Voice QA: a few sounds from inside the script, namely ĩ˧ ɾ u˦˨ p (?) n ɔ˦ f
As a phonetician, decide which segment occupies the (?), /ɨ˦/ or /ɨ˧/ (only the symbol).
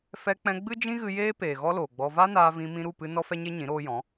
ɨ˧